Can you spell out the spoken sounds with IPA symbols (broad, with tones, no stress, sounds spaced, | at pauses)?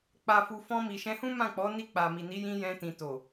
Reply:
k͡p a˨ f u˨ f ɔ̃˧ m i˨ ʃ ɛ̃˧ h ũ˦ m ã˦˨ k͡p ɔ˨˦ n i˧ k͡p a˨ m i˨ n i˨˦ j ĩ˧ j ɛ̃˧ t ĩ˨ t o˨